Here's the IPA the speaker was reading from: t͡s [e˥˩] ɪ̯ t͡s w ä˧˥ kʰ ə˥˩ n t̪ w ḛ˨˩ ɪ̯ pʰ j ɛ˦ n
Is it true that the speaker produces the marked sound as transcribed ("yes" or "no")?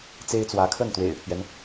no